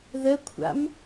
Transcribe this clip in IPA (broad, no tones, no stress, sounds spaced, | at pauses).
ð ə kʷʰ a̰ m